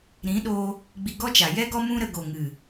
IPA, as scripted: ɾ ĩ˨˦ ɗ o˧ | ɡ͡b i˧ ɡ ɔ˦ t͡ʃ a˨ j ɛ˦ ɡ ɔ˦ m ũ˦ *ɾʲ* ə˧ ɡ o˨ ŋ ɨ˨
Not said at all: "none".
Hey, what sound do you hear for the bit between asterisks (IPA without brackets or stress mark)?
ɾ